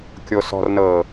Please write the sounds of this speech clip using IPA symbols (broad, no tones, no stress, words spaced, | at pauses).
kʲosɔ̤rnɤː